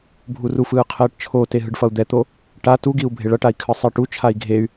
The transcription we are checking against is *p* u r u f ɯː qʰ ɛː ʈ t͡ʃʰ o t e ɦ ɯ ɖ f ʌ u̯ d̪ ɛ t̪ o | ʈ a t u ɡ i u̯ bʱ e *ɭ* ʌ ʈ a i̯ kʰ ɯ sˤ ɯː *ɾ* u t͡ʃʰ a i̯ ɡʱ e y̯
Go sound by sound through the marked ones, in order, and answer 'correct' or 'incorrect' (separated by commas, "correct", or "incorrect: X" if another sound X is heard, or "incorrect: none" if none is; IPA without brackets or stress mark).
incorrect: bʱ, correct, incorrect: ʈ